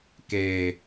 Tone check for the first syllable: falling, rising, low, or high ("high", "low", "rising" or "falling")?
low